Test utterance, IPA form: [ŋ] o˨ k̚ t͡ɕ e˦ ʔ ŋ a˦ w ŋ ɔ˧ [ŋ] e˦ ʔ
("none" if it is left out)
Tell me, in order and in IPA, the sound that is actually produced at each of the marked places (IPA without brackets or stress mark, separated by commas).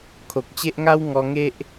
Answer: kʰ, ŋ